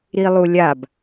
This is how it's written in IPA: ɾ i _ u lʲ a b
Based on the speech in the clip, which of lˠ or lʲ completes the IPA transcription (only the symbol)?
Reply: lˠ